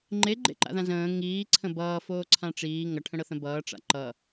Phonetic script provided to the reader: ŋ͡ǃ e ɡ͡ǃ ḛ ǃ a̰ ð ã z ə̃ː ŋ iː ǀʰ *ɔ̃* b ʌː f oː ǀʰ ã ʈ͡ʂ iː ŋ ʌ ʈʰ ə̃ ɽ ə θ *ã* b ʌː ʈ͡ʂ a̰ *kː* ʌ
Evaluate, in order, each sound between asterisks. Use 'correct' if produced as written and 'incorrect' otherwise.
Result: incorrect: ə̃, incorrect: ə̃, incorrect: ǃ

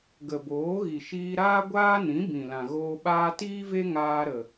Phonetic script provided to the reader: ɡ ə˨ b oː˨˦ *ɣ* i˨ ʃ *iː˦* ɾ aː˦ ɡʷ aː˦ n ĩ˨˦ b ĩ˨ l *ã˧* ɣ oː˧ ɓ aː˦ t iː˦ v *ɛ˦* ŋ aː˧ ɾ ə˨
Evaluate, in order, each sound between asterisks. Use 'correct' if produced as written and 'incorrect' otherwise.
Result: correct, incorrect: iː˧, incorrect: ã˨, incorrect: e˦

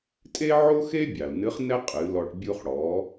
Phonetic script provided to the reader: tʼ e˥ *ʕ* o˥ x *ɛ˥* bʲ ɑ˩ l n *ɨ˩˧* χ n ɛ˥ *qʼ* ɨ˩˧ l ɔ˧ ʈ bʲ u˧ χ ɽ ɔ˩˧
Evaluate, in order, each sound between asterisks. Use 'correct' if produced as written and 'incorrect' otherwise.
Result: correct, incorrect: e˥, incorrect: ɨ˧˥, correct

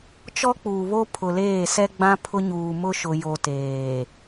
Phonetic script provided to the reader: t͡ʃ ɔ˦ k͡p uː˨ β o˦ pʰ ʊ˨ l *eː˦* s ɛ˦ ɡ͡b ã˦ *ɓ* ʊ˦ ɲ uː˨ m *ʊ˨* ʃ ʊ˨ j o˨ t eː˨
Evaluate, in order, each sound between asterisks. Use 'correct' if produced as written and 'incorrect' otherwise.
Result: incorrect: eː˦˨, incorrect: pʰ, incorrect: ʊ˦

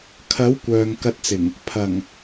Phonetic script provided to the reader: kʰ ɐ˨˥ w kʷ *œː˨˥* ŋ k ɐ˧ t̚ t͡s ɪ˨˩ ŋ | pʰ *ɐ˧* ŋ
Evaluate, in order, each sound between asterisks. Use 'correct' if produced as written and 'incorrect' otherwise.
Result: incorrect: œː˨, incorrect: ɐ˨˩

